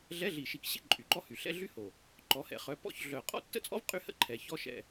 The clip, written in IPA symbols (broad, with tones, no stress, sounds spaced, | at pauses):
ɮ ɛ˧˥˧ ɮ i˨˩ ʃ i˨˩ k ɕ ḛ˥˧ ǃʼ y˨˩ ǃ ɔ˥ h y˨˩ ɬ ɛ̰˥ ɮ y˥ h o˨˩ | ǃ ɔ˨˦ h ɛ̰˨˩˦ χ œ˨˦ p ɔ̰˥˧ ç ɮ œ˨˩ qʼ ɔ̰˥˧ tː ə̰˥ t͡sʼ ɔ̰˥ v qʼ y˥ h ə̰˥˧ ǃʰ ɛ˨˩ ç ɔ˧˥˧ ʃ ɛ̰˥˧